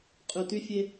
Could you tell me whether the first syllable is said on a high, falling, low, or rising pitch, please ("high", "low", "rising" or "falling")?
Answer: low